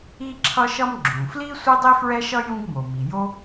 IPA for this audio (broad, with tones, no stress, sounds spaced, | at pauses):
i˥ ǁʰ ʌ˥ ʃ ʌ˥ m ɡ͡ǁ ũ˩ f l i˥ sʷ e˥ dˤ i˥ f ɹ ɛ˥ ʃ ʌ˥ j ũ˥ ɡ m o˩ m i˩ j o˥